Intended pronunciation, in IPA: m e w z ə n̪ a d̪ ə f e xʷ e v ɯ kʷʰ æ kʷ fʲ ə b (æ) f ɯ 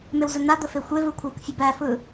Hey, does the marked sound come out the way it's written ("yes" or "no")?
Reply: yes